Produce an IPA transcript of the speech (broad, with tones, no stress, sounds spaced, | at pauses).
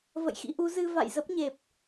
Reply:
v ə̰˧˨ j x ḭ˧˥ ʔ u˨˦ z ɨ˧ v a̰˧˨ j z ə˦˥ p̚ ɲ e˨˩ p̚